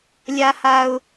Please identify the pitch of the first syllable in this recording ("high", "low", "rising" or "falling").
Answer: high